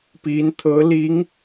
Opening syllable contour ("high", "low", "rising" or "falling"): rising